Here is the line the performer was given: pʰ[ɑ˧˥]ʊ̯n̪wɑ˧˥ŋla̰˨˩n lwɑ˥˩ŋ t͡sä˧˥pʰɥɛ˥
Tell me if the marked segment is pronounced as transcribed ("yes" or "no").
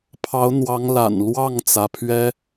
yes